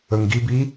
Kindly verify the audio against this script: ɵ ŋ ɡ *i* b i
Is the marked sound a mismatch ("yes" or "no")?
no